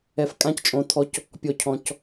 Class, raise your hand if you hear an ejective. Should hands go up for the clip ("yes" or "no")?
yes